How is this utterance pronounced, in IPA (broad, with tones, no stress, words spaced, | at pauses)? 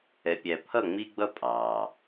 ɛ˨pʲæ˨ pʰʌ˦˨ŋ͡mi˦ɡ͡bʌ˦ pʼɑ˨